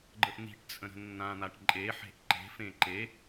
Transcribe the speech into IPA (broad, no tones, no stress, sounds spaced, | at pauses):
ɡ͡ǃ ə ʔ n̪ i̤ ʈ t͡sʼ ə̃ ɾ ə̤ nː ã n̪ a ʈ ǃʼ e ħ e̤ ʔ ǃ e̤ f ẽ ǃ e